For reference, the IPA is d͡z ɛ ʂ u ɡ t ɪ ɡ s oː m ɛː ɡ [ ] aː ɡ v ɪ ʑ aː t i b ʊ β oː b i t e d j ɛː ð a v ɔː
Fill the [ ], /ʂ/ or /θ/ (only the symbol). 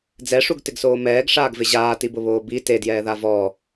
ʂ